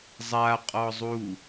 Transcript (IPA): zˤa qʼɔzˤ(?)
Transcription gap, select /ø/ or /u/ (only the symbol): u